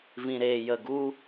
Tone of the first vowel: low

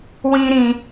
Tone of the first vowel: high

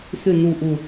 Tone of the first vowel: low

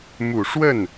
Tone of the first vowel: low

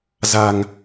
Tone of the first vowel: low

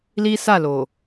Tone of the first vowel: high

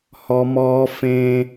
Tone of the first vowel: high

